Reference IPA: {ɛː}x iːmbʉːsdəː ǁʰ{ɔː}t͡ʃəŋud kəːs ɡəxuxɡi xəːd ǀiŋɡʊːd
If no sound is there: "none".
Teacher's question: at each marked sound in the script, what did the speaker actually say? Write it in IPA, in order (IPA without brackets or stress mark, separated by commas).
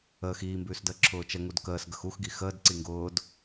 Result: əː, ʊː